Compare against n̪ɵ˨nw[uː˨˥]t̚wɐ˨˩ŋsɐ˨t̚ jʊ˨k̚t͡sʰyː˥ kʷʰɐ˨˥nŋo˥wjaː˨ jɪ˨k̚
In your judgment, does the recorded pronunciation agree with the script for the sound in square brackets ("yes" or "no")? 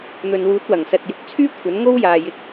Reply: yes